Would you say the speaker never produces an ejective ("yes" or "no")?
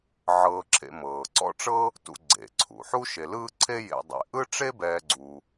yes